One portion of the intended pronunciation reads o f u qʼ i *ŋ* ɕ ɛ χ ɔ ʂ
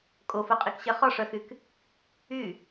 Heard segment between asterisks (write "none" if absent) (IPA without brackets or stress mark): k